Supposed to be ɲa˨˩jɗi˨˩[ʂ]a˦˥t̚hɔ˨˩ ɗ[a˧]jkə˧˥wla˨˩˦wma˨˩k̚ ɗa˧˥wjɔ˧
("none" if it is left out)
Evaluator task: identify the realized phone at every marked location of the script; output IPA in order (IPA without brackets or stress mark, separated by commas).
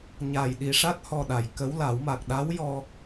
ʂ, a˨˩˨